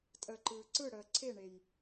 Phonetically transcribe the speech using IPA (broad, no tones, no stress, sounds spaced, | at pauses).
tʼ əː ǃ ɯː ǀ ɯ ɽ əː ǀʰ e ɳ e j